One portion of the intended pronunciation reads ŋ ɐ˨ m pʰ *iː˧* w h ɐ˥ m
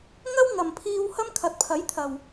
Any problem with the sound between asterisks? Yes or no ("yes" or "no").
no